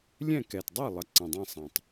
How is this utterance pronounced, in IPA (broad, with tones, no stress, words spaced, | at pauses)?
lʲɛ̃˥˨kɛ˨˩t dˤe˥˨lˠə˨˩ ǀə̃˨˩dˤĩ˥˨sˤɐ̃˨˩tˤ